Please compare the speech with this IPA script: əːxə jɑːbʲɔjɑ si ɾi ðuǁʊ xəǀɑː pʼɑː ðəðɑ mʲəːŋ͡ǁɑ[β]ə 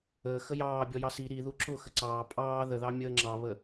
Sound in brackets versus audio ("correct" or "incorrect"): correct